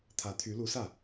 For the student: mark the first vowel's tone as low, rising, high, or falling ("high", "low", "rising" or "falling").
rising